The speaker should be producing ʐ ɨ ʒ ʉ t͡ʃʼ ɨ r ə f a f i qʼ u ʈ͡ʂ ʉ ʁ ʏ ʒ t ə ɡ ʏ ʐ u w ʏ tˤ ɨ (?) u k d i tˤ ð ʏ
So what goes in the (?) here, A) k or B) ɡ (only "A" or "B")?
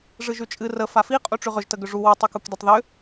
A